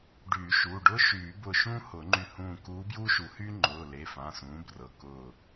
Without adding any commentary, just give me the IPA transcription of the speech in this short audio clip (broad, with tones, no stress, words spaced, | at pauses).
ɖyː˨˩˦ʃuː˩˧˩ɖʊː˥ ʃyː˨˩˦bʊː˧˩ ʃũː˥hʊ˨˩˦ŋ͡ǃy˧˩ hũː˧˩kuː˧˥bjuː˥ʃu˨˩˦ hy˥ŋ͡ǃʊː˩˧˩ le˩˧˩fã˩˧˩sũː˩˥ brɤ˩˧˩ kʊː˧˩